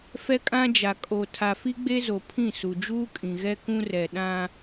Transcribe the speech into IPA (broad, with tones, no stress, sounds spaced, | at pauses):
f ɛ˦ kʼ ã˦ d͡ʒ a˨ kʼ o˨ tʰ a˨ f i˦ ɡ͡b e˦ z o˨ pʰ ĩ˦˨ s u˨ d͡ʒ uː˦ kʼ ĩ˨ ɣ ɛ˦ k ũ˦ r ɛ˨ ɗ ã˦